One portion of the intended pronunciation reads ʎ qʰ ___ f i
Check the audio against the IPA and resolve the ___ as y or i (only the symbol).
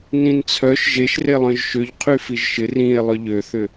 y